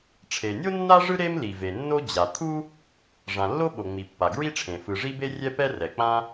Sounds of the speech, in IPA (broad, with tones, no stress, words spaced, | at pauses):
ʈ͡ʂʰe˩nʲo˥ nːa˥ʐɯ˥ ɾe˥mli˩ve˩ nːo˥ d͡ʑa˩ t̪ʰu˥ | ʐã˩lːo˥ ɓo˩ŋ͡mi˩pːa˩ ɡɹi˥ʈ͡ʂʰẽ˩ fɯ˩ ʐi˥be˥rʲɛ˥pɛ˥ rɛ˩k͡pã˥